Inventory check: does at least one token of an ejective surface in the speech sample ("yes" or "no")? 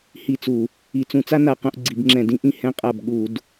yes